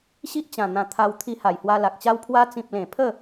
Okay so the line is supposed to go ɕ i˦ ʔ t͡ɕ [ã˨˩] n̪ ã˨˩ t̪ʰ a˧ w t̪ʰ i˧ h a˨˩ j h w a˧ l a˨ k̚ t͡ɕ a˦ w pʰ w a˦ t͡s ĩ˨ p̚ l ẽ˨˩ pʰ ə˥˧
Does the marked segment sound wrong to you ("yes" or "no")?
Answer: no